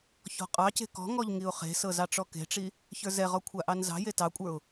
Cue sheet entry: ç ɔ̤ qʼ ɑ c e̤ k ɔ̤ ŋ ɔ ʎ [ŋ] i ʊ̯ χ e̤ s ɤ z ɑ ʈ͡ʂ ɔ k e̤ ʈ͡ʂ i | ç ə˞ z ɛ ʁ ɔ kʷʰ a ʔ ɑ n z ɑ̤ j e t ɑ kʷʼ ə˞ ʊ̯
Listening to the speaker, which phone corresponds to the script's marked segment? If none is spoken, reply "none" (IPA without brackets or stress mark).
ŋ